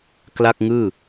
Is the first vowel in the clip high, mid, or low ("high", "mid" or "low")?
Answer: low